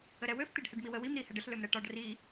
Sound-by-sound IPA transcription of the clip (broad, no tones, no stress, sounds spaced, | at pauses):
ə ɾ ɛ w ø f t̪ i ɖ h ɛ ɖ m i w ə w i m ɾ i h ɛ ɖ ə ɬ l ø m ɾ ɛ ʈ ɒ ɖ r i